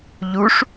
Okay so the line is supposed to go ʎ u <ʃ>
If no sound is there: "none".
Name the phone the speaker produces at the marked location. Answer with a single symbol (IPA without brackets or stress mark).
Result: ʂ